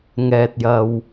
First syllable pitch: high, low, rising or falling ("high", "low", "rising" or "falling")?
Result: low